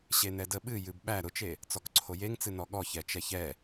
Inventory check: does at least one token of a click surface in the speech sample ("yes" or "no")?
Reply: yes